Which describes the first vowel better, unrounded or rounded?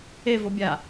unrounded